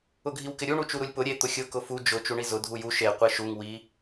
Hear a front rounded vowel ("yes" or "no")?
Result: no